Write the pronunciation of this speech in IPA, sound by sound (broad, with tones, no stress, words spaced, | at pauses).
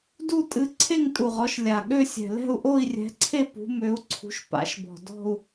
du˥˧ tʼɨ˨˥ǀʰe˥˧ŋ tʼu˨˩ʁɔ˨˥ʃ lʲa˨˩ ɠø˥˧sʲɛ̤˨˩ lɛ̤˥˧u̯ʔo˥˧i̯rʲɛ̤˨˥ǀʰe˥˧ pṳ˨˥mø˨˥u̯ǀʰṳ˨˥ʃ pa̰˨˥ʃbɔ̤˨˩ dɔ̤˥˧u̯